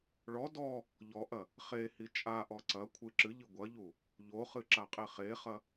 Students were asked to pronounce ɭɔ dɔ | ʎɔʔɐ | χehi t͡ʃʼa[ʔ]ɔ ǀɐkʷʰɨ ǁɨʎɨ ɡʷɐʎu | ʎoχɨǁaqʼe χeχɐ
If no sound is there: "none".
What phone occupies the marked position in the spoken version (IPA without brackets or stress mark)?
ʔ